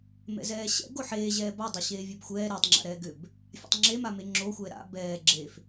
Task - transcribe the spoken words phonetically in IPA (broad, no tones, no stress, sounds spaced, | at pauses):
m ɛ̰ z ɛː ɕ ɛ̰ ɡ o ħ eː ʑ ɛː b a dˤ o ɕ eː vʲ e b xʷ ɛː ɾ ɛ tˤ ŋ͡ǁ a̰ ɾ ɛː ɡ ʏ b | fʲ a̰ tˤ ŋ͡ǁ e m a m e ŋ͡ǁ oː xʷ ɛː ɾ a̰ b ɛː ɡ͡ǁ e f